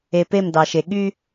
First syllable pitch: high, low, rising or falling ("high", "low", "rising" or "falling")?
low